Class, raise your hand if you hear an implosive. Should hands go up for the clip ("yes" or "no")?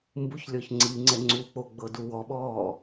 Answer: yes